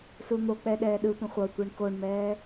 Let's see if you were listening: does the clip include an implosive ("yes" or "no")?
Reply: yes